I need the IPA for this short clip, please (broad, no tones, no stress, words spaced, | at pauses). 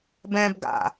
bɛ̃b ɡa̰